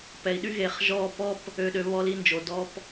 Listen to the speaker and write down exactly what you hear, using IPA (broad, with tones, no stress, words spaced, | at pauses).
pɛ˨i̯ɗy˦ ɣe˨χʒɔː˦˨p ɔ˦p | ø˨ɗø˨ βɔ˧li˧nd͡ʒo˨ dɔ˧p